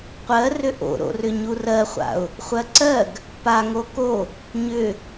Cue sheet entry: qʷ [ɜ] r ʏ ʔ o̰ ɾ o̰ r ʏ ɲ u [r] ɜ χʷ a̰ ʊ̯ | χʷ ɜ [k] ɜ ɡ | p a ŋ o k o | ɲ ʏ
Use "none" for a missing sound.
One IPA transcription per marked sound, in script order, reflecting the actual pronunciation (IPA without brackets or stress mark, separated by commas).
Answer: ɜ, r, ǀ